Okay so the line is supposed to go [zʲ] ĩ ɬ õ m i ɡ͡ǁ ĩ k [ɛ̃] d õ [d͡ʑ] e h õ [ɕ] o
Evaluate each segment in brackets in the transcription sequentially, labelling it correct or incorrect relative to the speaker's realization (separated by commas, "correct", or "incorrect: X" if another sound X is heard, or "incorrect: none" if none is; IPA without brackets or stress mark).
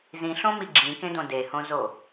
incorrect: z, incorrect: ẽ, incorrect: d, incorrect: z